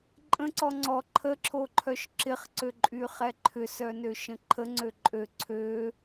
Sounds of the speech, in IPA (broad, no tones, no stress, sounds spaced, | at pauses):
ǃʼ ə̃ ǀ ɔ ŋ͡ǀ ɔ ǃʰ ə ǁʰ o ǃʰ œ ʃ ǁ ɪ χ ǀ ø ǃʼ y χ ɛ ǃʰ ʏ s œ n ø ʃ ə̃ ǃʰ ə ŋ͡ǀ ø ǃʼ ø ǀʰ ø